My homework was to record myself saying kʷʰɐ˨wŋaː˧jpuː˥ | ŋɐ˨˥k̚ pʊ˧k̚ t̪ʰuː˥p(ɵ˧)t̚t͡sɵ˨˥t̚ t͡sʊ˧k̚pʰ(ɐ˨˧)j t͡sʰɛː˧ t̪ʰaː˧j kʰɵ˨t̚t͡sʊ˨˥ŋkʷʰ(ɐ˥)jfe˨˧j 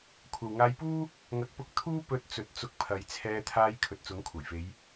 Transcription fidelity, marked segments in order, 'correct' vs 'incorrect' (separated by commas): correct, correct, incorrect